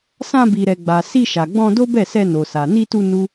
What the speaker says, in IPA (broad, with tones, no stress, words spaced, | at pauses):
sã˧bi˨ɾɛ˨ɡ͡ba˨ si˧ʃa˨ɡ͡bɔ̃˧ do˦bɛ˦˨sɛ˧ no˨sa˨ ni˧tu˧ nu˦